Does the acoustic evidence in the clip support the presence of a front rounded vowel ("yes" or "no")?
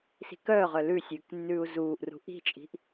yes